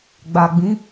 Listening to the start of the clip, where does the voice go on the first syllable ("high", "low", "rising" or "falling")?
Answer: low